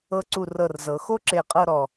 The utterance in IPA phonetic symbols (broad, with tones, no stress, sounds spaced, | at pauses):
ɤ˧ ǀ u˧˩ r ɤ˧˩ r z ɤ˩˧ x o˥ ǁ e˧˩ qʼ ɤ˥˧ ɾ ɔ˧˩